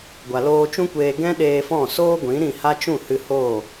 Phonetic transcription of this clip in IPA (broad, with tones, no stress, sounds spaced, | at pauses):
ɡʷ a˨ l oː˧ t͡ʃ ũ˦ kʷ eː˧ ɡ ɛ̃˦ ɗ eː˧ f ɔ̃˦˨ s oː˦ ɡʷ ĩ˨˦ ɾ ĩ˦˨ h a˦ t͡ʃ ũ˦˨ h ɨ˧ h oː˦˨